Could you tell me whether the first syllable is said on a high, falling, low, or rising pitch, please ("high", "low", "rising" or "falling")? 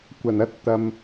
low